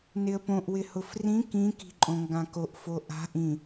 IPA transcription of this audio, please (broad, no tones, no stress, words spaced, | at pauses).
nɪə̯põʔ wɪhʊfrĩ kĩ ki̤ǃʼõŋɡãkoʔ foʔa̤ ʔĩ